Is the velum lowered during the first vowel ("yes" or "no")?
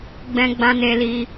yes